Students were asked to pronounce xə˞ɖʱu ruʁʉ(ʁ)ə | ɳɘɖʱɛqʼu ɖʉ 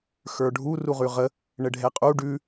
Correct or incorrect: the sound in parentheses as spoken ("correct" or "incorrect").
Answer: correct